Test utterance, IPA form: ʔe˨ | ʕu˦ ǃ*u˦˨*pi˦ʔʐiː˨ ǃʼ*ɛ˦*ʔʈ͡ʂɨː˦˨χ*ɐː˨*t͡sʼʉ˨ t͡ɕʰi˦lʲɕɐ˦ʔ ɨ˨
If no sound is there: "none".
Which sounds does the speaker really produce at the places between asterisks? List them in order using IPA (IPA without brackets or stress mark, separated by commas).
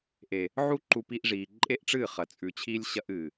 u˦, e˦, ɐ˨